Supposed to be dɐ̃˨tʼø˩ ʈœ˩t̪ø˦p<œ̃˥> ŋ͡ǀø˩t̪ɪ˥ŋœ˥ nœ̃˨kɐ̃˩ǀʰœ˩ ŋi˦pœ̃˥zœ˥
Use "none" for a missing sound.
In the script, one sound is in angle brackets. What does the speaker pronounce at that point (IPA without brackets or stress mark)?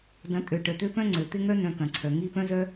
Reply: œ̃˥